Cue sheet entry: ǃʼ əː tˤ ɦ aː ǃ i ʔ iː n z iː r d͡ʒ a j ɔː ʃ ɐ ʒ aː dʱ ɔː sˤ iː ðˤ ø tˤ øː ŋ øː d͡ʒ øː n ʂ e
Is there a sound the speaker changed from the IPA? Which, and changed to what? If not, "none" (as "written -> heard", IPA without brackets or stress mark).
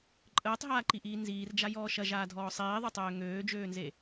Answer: ʂ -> z